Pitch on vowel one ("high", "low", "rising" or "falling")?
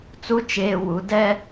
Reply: high